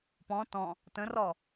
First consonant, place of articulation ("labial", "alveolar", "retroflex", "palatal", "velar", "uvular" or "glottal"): labial